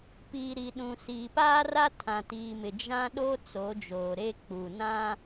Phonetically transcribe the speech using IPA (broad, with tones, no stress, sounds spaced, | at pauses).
p iː˨ ɾ i˨ ɗ ũ˨ s iː˨ p aː˦ r a˦ tʰ ã˨ t iː˨ m ɪ˨ d͡ʒ ã˦ ɗ o˦ t͡s o˨˦ d͡ʒ oː˨ ɾ e˦ k͡p u˨ n ã˦